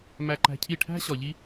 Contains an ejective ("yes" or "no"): no